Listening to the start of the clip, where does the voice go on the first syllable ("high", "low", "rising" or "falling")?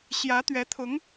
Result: rising